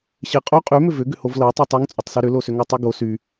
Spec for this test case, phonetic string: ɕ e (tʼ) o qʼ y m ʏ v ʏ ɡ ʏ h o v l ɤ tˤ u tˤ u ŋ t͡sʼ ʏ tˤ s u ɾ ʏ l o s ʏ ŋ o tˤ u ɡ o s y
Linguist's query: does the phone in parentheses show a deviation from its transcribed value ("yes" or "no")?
yes